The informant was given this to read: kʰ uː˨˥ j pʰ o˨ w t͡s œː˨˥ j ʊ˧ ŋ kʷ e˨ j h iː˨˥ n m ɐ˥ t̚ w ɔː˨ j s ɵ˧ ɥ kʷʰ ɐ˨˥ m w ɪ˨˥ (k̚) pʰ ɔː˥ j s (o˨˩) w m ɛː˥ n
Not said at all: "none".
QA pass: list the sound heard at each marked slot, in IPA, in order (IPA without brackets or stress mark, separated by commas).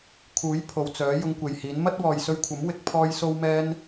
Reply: k̚, o˥